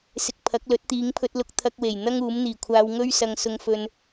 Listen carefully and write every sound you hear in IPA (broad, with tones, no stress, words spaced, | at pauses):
sɪ˧k̚pʰɐ˨˥k̚ lɵ˨˥t̚t̪iː˨˥ŋpʰɵ˧t̚lʊ˧k̚ t̪ʰɐ˧k̚we˨˩j n̪ɐ˥ŋuː˨˥mn̪iː˨˩kʷʰaː˧w ŋɵ˥ɥsɐ˧ŋ sʊ˧ŋfɵ˧n